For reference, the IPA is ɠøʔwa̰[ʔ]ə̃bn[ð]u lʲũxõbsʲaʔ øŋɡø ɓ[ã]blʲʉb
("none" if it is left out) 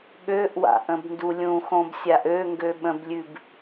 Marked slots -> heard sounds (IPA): ʔ, d, ə̃

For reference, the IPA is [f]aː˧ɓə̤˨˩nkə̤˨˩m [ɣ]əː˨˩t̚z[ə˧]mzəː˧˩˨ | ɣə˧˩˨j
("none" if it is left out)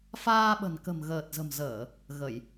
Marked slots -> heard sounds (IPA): f, ɣ, ə̤˨˩

